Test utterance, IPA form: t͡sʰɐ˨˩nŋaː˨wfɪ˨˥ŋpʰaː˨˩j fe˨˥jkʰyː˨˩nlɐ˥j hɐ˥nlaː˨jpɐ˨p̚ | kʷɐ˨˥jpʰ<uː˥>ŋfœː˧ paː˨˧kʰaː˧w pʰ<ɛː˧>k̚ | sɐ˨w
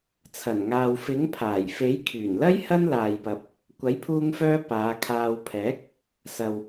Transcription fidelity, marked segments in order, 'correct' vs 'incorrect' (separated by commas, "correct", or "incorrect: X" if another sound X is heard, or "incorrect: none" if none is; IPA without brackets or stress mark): incorrect: uː˧, incorrect: ɛː˨˥